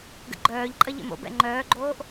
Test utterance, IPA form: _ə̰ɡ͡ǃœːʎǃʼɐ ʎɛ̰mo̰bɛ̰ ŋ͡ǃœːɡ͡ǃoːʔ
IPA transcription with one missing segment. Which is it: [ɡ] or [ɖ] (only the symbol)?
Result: ɡ